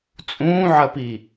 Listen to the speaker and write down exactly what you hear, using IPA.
t͡sʼ ũː ʕ ɐ p i

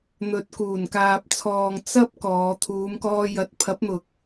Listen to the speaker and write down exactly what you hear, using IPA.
n̪ ɵ˨ t̚ k uː˨˩ n k aː˨ p̚ t͡sʰ ɔː˨ ŋ t͡s ɐ˥ p̚ k ɔː˨˧ t̪ʰ uː˨˧ m k ɔː˧ j ɐ˨˥ t̚ pʰ ɐ˨˥ p̚ n̪ ʊ˨ k̚

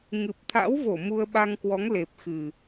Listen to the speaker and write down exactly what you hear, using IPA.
ŋ ɨ˨˩ p̚ t̪ʰ a̰˧˥ w v o˧˩ m u˧ ə̯ ɓ a˧ ŋ k w ɔ˨˦ ŋ l e˨˩ p̚ x ɨ˨˩

